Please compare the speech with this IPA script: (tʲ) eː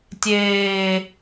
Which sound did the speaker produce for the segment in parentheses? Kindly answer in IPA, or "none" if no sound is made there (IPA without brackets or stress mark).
tʲ